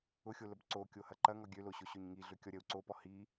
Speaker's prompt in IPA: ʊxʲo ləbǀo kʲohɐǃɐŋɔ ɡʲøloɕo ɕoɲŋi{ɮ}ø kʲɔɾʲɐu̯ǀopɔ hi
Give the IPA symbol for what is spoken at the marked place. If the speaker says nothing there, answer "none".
ɮ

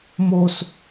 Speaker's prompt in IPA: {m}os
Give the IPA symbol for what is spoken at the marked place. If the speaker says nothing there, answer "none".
m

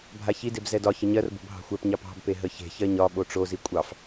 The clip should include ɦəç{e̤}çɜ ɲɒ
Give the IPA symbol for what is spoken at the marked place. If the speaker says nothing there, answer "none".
e̤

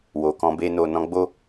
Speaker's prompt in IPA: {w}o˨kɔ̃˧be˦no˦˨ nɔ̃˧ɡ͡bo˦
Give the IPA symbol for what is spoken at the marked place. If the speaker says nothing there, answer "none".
w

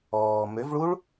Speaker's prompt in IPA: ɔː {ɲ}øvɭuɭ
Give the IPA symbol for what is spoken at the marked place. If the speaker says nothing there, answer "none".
m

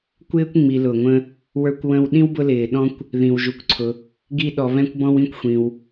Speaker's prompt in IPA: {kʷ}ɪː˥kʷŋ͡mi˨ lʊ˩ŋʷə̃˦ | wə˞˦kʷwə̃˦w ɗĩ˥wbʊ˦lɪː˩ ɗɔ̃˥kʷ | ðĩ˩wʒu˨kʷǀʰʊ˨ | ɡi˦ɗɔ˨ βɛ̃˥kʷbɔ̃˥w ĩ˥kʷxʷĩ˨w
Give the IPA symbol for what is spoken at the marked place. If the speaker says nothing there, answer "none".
kʷ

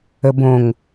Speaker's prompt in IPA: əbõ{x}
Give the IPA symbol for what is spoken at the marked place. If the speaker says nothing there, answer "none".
ŋ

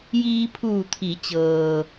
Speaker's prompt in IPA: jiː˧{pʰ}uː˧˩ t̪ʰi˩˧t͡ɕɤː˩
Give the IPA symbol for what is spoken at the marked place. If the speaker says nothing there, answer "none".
pʰ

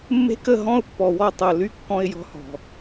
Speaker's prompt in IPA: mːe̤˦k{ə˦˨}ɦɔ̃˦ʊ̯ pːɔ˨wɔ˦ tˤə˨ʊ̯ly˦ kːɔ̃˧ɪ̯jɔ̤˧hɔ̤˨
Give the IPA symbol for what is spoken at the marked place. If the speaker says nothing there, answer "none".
ə˦˨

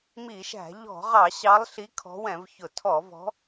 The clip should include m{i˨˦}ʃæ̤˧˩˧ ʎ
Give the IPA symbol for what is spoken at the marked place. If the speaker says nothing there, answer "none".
i˧˩˧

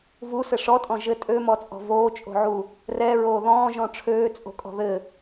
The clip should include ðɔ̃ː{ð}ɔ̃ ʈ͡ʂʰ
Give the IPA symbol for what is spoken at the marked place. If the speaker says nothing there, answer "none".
ʒ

